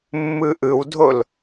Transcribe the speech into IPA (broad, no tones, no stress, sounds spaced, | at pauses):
mː ɯ ʔ ɯ w dʱ o l